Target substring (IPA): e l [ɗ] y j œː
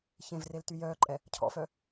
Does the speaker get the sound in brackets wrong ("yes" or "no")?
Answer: yes